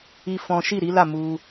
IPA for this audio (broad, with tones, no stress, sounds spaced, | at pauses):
i˦ f ɔ̃˦ ʃ i˦˨ ɾ i˨˦ l a˦˨ m u˧